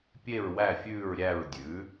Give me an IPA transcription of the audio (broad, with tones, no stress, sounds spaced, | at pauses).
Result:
pʲ e˦˨ ɹ w æ˦˨ fʲ ʉː˦˨ ɹ ɾʲ æ˦˨ ɹ dʲ ʉ˩˥